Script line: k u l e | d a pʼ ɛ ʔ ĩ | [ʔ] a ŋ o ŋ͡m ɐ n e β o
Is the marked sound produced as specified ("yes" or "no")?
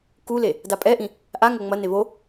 yes